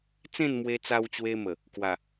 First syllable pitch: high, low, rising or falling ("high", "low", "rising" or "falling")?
falling